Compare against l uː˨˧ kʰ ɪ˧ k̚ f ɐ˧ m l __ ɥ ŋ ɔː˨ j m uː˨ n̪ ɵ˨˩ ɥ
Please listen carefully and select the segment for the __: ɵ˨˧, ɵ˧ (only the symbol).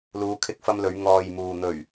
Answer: ɵ˨˧